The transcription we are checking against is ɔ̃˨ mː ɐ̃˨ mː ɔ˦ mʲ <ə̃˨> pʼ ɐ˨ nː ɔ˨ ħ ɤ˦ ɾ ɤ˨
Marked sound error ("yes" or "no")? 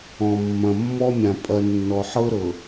yes